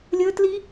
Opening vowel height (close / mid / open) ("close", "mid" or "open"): mid